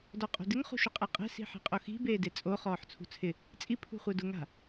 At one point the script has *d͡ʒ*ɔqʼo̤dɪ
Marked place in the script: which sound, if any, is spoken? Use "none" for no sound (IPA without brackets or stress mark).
d